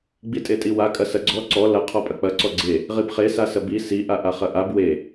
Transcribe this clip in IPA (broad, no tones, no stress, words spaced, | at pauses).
ɡ͡bitʼetʼiwa kʼɐsɐɡ͡ǀɔ ǀɔ lɐ qʰɔpʼɐk͡pɐ ǀɔɡ͡ǀe | ʁibχe sasɐbi si ʔaʔaχɐʔab we